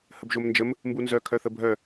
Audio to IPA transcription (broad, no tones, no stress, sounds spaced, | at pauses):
h ə b ʒ o m n d͡ʒ ə m | m b u n z œ kʰ œ θ ə bʱ œ